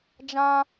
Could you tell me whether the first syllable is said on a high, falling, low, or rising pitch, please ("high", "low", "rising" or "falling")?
high